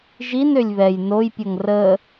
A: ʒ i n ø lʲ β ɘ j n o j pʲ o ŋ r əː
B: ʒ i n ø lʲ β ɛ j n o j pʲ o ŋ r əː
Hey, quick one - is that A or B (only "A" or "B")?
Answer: B